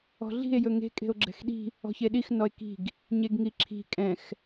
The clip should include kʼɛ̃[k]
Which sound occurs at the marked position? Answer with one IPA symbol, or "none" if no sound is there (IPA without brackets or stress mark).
x